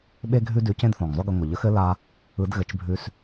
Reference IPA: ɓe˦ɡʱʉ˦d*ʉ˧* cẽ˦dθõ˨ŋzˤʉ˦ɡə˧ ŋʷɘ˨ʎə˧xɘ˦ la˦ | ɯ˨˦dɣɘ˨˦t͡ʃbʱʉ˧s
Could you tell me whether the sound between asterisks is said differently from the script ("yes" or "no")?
no